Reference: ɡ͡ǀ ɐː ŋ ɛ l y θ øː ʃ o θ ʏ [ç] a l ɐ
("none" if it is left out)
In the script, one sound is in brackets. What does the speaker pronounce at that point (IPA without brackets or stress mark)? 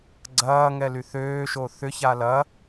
ç